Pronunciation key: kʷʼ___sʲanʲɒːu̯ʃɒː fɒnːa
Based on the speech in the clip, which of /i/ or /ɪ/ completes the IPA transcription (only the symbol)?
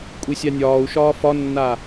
i